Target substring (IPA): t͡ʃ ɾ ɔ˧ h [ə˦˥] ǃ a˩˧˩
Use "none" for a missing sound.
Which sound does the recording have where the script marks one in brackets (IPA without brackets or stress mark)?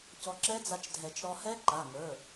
ɛ˦˥